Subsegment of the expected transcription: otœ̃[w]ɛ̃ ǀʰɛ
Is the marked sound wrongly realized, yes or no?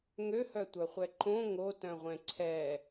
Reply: yes